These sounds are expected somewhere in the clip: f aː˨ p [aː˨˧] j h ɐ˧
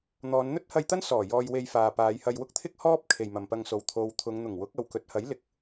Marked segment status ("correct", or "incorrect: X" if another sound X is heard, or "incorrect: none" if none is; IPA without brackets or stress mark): correct